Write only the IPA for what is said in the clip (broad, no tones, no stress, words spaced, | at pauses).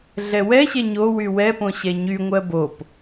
ɮɛwɛɕɛ ɲowy wɛpõ ɕɛɲyŋʷɜ bop